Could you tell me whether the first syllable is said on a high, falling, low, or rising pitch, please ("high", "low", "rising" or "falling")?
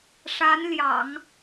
rising